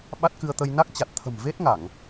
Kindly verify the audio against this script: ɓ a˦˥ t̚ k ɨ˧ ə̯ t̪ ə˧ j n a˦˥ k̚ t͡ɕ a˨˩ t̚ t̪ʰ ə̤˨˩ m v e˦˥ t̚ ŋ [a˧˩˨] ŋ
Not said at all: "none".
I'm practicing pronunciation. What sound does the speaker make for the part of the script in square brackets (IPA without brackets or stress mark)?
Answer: a˧˩˨